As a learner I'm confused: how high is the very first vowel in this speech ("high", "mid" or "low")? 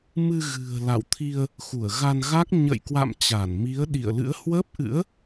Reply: high